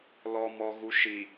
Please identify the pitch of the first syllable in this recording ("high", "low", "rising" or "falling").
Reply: low